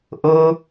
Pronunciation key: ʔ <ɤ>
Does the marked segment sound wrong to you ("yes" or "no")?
no